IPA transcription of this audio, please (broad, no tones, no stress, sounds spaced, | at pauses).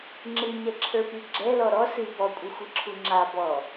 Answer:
ŋ͡ǁ ɨ ɲ ɛ ǁʰ ə˞ p i ɡ͡ǁ ɛ l ɔ ɾ ɔ s ɨ b ɔ kʷʼ ɨ xʷ i ǁʰ u ŋ͡ǁ a b ɔ